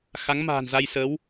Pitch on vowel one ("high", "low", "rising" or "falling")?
rising